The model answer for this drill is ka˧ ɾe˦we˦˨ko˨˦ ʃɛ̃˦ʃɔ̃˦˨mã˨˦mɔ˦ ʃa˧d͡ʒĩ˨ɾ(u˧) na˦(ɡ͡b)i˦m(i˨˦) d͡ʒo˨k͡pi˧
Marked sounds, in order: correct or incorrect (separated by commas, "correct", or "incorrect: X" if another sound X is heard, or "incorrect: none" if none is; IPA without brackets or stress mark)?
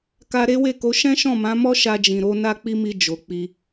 incorrect: o˧, incorrect: k͡p, incorrect: i˧